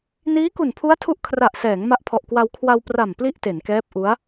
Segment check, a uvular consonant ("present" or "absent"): absent